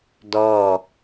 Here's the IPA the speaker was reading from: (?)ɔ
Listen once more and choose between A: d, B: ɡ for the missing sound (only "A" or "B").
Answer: A